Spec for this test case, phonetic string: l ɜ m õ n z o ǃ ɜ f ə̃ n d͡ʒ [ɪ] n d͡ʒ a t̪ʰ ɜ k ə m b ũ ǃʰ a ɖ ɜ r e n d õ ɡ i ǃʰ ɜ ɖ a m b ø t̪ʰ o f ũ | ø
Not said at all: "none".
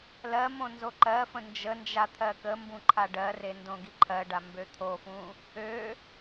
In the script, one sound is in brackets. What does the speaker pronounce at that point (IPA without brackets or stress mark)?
ə